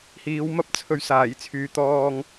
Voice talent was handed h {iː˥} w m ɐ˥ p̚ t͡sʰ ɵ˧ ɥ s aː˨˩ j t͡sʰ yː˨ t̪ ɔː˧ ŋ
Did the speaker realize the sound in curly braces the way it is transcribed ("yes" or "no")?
no